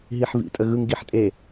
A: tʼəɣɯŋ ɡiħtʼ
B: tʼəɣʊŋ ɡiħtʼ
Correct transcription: A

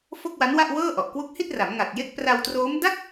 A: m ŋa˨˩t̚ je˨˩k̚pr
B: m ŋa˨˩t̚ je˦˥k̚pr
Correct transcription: B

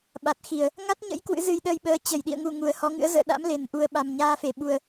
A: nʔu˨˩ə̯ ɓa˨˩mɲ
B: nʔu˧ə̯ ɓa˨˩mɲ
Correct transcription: A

